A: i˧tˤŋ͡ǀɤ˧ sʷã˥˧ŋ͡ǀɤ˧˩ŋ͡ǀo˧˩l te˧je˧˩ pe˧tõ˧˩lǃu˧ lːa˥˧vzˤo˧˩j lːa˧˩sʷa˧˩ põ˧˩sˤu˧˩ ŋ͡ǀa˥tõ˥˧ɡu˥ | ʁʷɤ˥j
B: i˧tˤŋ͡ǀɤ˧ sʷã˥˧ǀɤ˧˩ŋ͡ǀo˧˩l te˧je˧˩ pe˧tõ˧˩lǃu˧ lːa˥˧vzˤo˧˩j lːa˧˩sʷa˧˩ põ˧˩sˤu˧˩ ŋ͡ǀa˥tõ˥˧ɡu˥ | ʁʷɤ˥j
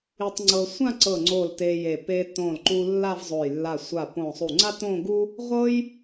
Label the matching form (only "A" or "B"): B